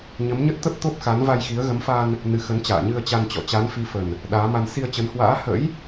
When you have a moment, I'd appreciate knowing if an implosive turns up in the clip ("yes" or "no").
yes